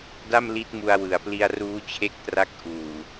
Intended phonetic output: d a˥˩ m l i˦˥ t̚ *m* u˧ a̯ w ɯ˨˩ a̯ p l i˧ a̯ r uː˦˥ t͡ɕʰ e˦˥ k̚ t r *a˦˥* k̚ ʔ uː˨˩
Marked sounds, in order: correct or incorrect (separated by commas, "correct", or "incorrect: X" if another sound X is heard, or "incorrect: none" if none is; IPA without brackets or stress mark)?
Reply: correct, correct